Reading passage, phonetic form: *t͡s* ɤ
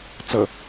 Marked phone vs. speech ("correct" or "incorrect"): correct